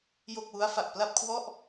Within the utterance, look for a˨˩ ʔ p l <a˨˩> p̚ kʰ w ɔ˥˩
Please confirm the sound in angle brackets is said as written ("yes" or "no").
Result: no